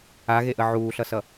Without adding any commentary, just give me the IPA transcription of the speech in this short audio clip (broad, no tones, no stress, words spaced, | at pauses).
aɣeʔə ʕuːɬʌsʌ